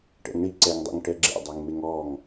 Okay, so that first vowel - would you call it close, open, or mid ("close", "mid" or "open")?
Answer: mid